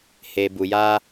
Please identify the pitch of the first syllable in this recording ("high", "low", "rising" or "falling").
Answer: low